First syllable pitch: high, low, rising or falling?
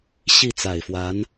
falling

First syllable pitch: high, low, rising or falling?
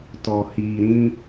low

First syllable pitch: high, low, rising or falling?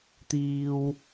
high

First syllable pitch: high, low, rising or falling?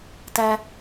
low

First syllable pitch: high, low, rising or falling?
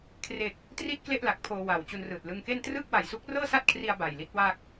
low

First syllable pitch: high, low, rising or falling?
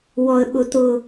low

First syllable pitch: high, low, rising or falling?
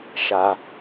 low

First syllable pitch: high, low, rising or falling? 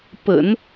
low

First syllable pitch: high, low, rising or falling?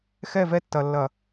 falling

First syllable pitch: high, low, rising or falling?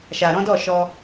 low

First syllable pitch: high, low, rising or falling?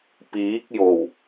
rising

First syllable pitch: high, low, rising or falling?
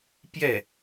falling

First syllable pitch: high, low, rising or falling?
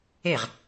falling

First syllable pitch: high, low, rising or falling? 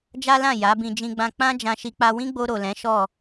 high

